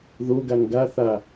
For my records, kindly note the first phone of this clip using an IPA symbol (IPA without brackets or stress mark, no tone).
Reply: ð